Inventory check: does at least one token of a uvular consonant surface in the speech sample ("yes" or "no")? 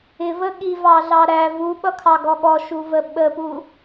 no